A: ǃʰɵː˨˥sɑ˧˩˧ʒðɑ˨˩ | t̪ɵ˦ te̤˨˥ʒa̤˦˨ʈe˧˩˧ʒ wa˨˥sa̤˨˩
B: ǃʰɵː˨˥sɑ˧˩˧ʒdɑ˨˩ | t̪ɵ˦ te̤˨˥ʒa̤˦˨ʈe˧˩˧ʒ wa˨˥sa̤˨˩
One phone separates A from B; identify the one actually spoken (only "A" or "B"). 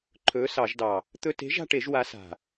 B